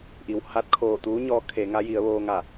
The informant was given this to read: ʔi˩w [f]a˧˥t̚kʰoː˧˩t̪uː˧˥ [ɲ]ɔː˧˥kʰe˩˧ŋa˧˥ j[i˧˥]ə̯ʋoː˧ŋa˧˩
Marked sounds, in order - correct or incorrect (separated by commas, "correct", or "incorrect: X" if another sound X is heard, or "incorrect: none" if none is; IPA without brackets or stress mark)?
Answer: incorrect: h, correct, incorrect: i˩˧